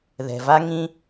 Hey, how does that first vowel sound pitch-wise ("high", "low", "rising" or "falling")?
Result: low